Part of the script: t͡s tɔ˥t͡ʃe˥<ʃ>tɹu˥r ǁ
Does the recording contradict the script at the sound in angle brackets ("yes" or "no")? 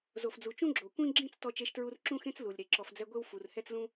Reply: no